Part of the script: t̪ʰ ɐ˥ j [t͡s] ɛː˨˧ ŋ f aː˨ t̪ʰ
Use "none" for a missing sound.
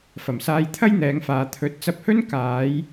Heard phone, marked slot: n̪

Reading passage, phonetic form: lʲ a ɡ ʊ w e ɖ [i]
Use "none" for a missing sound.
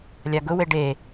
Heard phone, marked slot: e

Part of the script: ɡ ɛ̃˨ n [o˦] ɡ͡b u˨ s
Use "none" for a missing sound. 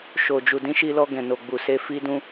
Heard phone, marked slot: o˨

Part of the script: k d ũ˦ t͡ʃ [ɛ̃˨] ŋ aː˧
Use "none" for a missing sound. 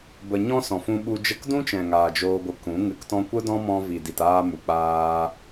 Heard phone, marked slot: ɛ̃˨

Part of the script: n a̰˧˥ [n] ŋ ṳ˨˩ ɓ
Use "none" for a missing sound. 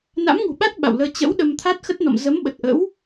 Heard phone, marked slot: m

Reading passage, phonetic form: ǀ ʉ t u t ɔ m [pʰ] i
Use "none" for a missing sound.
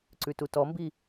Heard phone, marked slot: b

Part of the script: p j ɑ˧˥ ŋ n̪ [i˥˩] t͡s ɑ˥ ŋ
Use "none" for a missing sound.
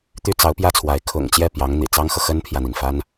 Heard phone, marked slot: ḭ˨˩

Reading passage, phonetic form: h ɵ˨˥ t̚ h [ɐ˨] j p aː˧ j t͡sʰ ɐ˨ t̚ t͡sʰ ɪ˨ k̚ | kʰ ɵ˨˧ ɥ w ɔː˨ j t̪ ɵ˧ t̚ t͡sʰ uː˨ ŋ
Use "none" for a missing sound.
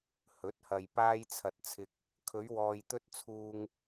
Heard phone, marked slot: ɐ˨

